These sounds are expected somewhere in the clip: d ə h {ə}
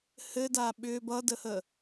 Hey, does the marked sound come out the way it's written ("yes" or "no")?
yes